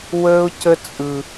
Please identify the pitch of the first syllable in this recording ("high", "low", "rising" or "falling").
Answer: high